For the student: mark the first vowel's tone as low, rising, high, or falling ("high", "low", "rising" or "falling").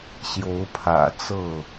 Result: rising